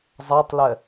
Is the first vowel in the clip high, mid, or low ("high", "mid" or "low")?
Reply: low